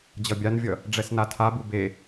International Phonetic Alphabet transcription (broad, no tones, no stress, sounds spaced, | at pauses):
d͡ʑ ʌ bʲ a n vʲ ʌ | ɖ͡ʐ ɛ s n a tʰ a b u b e